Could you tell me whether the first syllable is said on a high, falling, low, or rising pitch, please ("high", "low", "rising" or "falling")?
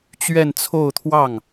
falling